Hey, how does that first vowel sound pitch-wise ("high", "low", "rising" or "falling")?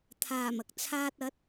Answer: low